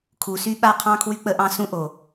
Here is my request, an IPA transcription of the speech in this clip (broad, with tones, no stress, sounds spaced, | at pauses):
kʰ u˩ s y˧ ɓ a˧ qʰ ɑ̃˧ kʰ w y˧ k͡p ə˧ ʔ ɑ̃˧ s ũ˧ ʔ o˩